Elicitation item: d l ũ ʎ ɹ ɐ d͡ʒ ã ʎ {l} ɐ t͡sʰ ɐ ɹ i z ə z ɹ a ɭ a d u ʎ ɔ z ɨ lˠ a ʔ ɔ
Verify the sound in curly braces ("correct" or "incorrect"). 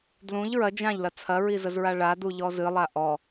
correct